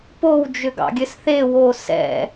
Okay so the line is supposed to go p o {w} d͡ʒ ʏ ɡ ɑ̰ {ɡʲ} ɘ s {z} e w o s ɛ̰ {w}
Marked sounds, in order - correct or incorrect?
correct, correct, incorrect: θ, incorrect: none

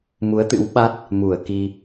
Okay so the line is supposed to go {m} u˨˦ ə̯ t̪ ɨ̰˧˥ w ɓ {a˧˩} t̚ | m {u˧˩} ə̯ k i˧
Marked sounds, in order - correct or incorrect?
correct, incorrect: a˦˥, correct

